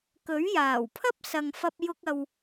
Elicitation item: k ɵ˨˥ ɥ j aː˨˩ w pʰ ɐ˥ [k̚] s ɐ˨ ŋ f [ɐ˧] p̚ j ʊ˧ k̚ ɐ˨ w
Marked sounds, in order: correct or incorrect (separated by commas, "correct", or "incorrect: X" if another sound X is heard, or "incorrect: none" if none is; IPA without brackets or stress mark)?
incorrect: p̚, correct